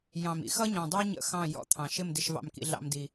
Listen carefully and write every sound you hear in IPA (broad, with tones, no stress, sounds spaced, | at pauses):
j ɑ̃˨ m ḭ˦ x ʌ˦ ɲ ɔ̃˨ dˤ ə˞˦ ɲ ə̰˦˨ x ɑ̃˦˨ j ɔ̰˦ t̪ʰ ɑ̃˨ ʃ ɪ˦˨ m d ɪ˨ ʃ v ɑ̰˨ m k ḭ˨ ɮ ɑ̰˦ m d i˦